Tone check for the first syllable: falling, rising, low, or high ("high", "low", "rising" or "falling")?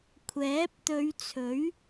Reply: rising